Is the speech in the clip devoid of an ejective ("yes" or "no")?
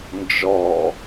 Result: yes